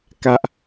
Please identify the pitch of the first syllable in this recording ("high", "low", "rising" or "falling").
high